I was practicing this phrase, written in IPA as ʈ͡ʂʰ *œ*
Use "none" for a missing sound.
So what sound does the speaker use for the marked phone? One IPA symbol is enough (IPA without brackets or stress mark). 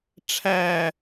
æ